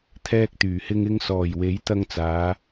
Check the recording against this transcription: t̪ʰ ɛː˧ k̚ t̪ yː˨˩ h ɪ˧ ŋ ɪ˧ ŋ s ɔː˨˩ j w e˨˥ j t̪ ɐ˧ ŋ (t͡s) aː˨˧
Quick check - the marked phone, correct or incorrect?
correct